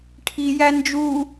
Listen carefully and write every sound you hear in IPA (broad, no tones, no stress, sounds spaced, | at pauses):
ʈʰ i j æ n d͡ʒ u